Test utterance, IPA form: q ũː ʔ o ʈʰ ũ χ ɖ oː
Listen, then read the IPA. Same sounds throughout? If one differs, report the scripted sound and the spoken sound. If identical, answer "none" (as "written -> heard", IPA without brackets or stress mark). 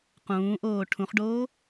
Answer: o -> oː